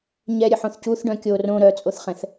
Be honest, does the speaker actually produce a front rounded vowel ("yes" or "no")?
yes